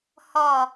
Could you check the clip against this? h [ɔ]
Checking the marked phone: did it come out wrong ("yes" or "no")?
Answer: no